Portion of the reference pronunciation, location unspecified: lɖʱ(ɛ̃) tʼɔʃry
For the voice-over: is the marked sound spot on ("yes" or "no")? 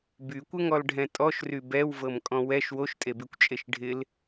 yes